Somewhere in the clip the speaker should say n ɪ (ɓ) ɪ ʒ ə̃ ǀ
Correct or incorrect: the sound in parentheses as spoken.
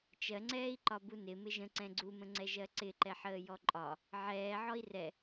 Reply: incorrect: m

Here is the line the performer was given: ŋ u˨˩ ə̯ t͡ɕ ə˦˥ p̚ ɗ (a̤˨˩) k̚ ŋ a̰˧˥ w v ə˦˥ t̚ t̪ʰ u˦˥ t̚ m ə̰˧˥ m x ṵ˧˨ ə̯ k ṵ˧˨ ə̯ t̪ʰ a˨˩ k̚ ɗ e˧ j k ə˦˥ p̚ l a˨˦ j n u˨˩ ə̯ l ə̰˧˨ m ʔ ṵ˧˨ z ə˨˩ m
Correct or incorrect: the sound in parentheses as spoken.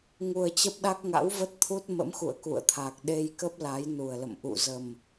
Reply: incorrect: a˦˥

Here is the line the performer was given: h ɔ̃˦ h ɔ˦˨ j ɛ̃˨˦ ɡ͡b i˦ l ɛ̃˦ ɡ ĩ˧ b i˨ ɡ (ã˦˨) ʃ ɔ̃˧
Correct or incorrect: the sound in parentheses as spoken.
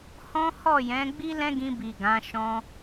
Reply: incorrect: ã˨˦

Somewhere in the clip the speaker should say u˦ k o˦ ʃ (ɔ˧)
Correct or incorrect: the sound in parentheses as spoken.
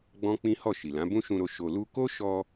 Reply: correct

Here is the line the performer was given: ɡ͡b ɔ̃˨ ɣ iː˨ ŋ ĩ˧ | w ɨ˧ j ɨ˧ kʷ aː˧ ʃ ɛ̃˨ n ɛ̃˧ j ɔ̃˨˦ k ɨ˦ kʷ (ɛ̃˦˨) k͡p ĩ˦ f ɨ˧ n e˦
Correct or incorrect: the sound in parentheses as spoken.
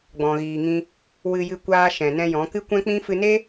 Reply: incorrect: ɛ̃˦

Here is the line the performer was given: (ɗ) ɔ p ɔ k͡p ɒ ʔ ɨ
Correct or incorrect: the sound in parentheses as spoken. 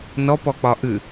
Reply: incorrect: n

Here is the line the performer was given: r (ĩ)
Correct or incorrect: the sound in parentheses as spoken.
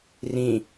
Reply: correct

